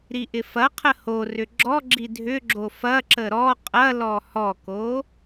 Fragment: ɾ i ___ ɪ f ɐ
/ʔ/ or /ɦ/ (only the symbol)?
ʔ